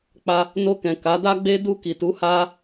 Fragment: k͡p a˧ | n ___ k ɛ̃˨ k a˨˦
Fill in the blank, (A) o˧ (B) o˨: A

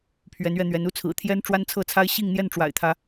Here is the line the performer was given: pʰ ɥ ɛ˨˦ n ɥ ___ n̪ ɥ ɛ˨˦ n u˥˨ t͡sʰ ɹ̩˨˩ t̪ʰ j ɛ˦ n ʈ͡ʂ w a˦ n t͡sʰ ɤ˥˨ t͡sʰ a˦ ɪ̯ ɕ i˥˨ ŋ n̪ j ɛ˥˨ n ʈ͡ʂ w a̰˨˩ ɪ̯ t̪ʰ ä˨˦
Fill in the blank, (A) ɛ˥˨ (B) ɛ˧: B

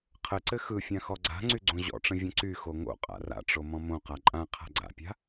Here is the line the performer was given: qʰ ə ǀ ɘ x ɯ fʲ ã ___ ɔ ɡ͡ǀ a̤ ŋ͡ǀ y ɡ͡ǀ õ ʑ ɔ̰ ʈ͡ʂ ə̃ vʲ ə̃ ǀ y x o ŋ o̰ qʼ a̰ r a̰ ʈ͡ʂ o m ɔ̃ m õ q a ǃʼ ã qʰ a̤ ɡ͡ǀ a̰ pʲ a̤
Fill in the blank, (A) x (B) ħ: A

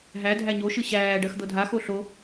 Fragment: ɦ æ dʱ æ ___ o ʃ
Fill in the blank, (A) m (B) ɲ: B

